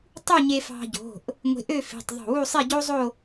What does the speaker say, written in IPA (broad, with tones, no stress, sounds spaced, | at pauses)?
tˤ u˥˧ ɲ e˧ f ɑ̤˧ ɟ o̤˩˧˩ ʔ | ŋʷ e̤˧ ʔ ø˥˧ f e̤˩˧˩ tˤ ðˤ o̤˧˩ w u˥˧ sˤ e˥˧ ɟ o˥ zˤ o˥˧